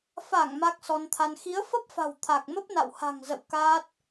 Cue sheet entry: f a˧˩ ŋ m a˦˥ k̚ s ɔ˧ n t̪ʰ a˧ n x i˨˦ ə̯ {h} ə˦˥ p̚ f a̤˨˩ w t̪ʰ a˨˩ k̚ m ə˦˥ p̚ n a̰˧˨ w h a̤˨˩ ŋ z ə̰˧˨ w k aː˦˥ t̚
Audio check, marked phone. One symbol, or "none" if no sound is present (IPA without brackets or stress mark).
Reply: f